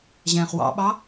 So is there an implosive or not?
yes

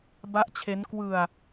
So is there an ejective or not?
no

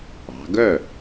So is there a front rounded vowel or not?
yes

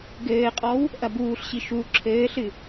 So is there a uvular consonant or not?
yes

